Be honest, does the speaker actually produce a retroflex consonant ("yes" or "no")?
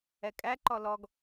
no